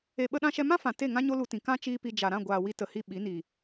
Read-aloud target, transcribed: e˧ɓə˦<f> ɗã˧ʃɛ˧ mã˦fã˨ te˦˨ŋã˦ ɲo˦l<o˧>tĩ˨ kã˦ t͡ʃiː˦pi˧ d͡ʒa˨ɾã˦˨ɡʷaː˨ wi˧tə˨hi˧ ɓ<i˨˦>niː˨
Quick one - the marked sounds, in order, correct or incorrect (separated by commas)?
incorrect, incorrect, correct